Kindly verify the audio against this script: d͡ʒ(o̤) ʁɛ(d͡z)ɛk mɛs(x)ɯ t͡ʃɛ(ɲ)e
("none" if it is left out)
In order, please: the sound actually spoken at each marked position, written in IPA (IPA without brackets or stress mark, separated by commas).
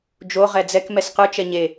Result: o, d͡z, q, ɲ